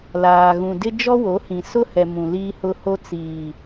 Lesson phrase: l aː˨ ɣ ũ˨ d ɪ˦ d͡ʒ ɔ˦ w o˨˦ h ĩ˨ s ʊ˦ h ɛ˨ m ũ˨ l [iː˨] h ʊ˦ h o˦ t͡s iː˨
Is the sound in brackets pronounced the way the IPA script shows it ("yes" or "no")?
no